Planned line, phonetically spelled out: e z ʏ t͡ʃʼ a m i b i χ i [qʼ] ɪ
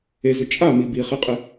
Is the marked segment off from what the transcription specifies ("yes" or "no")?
no